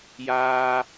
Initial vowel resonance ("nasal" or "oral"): oral